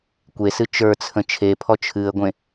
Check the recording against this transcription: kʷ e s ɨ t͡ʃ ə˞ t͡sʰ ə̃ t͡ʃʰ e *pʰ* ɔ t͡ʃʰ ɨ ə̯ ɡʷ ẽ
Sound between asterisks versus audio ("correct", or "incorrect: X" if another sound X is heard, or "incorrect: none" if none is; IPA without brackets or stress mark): correct